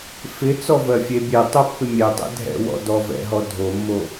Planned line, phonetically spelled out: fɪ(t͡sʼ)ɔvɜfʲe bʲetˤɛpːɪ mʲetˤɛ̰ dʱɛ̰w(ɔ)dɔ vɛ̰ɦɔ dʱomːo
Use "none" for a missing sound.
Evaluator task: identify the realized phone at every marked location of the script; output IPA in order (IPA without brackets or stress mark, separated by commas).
t͡s, ɔ̰